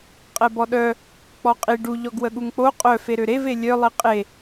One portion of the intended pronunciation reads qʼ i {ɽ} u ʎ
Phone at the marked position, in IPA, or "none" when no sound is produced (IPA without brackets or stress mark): ɖ